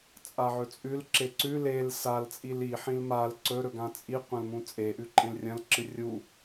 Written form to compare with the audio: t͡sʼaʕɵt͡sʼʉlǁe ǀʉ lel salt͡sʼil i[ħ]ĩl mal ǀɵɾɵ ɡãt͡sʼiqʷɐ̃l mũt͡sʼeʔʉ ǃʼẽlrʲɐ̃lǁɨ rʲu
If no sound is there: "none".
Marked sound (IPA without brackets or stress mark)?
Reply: ħ